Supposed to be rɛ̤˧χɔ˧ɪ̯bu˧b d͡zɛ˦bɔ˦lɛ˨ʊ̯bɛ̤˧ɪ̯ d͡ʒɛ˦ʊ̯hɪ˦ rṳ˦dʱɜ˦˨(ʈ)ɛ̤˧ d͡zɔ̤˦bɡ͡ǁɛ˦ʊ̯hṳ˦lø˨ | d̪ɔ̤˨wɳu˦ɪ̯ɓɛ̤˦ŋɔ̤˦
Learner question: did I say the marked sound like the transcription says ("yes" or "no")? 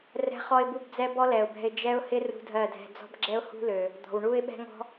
no